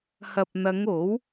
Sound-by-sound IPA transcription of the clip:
h ɐ˨ p̚ n̪ ɐ˨˧ ŋ o˨˥ w

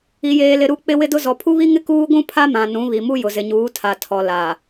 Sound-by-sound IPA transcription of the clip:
i˨ j eː˨ l ɪ˨ ɾ u˦˨ k͡p ɪ˦ w ɪ˦ d ʊ˦ z ɔ˨ pʰ u˦ β i˦ ŋ ɪ˦ k uː˦ ɡʷ ũ˦ pʰ a˦ m ã˨ n ũ˨˦ β i˨ m u˦ j ʊ˨ z ɪ˨ ɲ uː˨˦ tʰ a˨ tʰ ɔ˨ l a˨

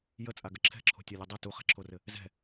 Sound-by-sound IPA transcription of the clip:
j ə t͡sʼ a ɡ ə ǁʰ ɛ̤ ǁʰ o̤ tʲ ɒ lʲ o dˤ ɘ t u χ ɛ̤ ǁʰ o r ɘ | z ɛ̤

